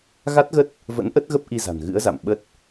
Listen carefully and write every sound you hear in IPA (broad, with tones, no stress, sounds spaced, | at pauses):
ɣ a˦˥ t̚ ɣ ə˦˥ t̚ | v ə̰˧˥ n ʔ ə˦˥ t̚ ɣ ə˦˥ p̚ ʔ i˧ z a̤˨˩ n ɣ ɨ̰˧˥ ə̯ z a̰˧˨ m ɓ ə˦˥ t̚